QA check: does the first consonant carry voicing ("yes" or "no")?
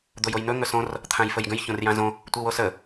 yes